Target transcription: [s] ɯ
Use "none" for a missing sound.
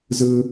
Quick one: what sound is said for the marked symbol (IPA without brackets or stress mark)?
z